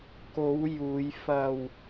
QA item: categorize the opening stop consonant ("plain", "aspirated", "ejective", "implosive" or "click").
plain